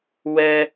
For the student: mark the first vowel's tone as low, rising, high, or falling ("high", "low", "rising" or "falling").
high